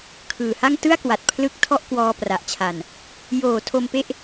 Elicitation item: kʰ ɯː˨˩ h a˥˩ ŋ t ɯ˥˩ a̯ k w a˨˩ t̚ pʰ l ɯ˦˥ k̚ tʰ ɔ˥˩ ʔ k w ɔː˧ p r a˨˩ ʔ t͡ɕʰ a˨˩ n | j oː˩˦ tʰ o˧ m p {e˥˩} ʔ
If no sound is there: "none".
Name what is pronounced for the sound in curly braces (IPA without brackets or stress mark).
e˥˩